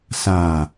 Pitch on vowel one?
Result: low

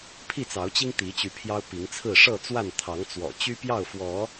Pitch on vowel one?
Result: falling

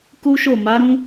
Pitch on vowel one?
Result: high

